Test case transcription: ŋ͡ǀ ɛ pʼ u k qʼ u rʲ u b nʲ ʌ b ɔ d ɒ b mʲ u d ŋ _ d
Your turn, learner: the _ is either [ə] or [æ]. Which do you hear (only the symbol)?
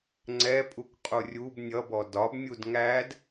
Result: æ